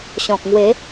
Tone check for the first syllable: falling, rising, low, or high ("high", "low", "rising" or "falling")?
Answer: low